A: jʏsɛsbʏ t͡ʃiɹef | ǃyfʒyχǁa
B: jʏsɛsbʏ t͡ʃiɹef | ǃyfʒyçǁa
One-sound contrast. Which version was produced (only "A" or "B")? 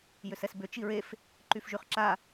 A